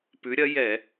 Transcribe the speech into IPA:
pʉ˨˥ɾʲɐ˨˥ jɛ˧˩˧

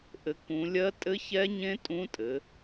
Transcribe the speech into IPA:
ʔɘ˨˦kũ˨˦lʲɜ˦˥ tʼɘ˦˥çɛ˦˥ɲẽ˦˥ tʼũ˦˥tʼɘ˨˦

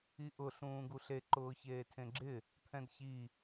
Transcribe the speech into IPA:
iʔʊ ɬũːɡuɬe ǃʊːçeːtʰẽɡ͡ǁɪ | t̪ʰɛ̃dçi

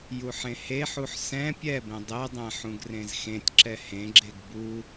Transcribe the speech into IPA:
juħẽheħuħ sɛ̃ pʲɛbẽ dˤedˤɛ̃ ħũɡrẽzxẽtʲǁɛ hẽɡ͡ǁeɡ bu

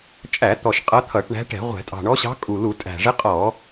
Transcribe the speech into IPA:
t͡ʃʼæ˧˩˧t̪ɔ˨˩ʃ qʼʌ˧˥t̪ʰʌ˧˩˧ʈɳæ̤˧˥ ʈɛ̤˧˩˧ʁʷɛ̤˧˩˧ tʼɑ̤˨˩ɳɔ˧˥ɕɑ̤˧˥ kʼu˨˩lu˧˩˧ tʼæ̤˨˩ʐɪ˧˥qʼɔ˧˩˧

